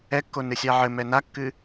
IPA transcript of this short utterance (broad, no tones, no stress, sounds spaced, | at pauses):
ɛ kː o n ɨ sʲ a ʕ ɘ m ɛ n a kː ɨ